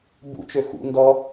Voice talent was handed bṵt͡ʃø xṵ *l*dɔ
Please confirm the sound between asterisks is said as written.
no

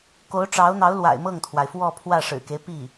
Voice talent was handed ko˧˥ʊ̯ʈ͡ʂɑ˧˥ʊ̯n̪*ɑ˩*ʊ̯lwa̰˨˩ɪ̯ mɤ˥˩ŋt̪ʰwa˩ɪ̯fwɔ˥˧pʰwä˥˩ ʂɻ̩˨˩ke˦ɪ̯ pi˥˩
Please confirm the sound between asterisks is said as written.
no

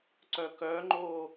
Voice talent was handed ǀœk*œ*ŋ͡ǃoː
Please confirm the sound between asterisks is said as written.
yes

